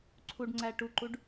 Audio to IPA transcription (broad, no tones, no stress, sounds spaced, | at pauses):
ǀʰ u ɖ ŋ͡ǀ æ ʈ u ǃ u ɖ